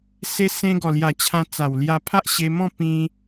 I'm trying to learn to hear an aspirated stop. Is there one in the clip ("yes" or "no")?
yes